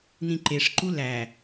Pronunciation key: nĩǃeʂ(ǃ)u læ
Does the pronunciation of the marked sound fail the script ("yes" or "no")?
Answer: no